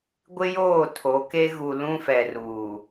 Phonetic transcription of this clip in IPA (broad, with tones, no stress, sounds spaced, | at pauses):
ɡʷ ɪ˦ j oː˦˨ tʰ o˨˦ k e˦ ɣ u˨ l ũ˦ f ɛ˨ r uː˨